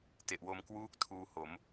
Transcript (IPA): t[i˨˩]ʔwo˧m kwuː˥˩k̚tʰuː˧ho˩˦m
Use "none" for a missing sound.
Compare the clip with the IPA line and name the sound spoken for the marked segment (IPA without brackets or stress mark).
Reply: e˨˩